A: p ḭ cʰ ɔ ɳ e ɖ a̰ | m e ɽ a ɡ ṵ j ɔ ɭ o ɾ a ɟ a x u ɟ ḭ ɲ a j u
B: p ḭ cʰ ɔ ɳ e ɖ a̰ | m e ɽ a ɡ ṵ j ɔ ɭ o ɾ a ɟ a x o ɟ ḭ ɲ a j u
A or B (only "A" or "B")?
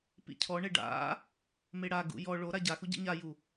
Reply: A